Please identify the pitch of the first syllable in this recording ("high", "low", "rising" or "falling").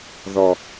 low